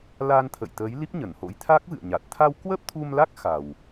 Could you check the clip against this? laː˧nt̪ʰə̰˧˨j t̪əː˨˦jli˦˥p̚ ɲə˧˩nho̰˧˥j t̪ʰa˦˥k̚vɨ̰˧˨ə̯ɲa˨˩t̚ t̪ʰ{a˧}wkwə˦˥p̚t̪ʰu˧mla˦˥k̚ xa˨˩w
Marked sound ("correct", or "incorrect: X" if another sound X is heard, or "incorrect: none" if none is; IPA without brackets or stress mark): correct